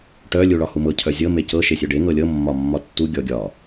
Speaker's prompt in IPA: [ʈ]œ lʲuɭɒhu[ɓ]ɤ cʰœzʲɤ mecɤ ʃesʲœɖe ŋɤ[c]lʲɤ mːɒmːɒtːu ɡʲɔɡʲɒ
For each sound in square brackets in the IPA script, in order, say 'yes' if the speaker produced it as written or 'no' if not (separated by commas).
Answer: yes, no, no